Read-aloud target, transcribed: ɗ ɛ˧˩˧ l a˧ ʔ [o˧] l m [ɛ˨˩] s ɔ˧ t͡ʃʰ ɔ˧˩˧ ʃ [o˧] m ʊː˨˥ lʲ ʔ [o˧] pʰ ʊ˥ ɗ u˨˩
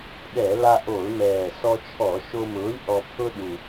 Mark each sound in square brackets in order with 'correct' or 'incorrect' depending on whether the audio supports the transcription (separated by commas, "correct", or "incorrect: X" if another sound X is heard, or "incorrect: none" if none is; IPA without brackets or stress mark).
incorrect: o˧˩˧, incorrect: ɛː˨˩, correct, incorrect: ɔ˧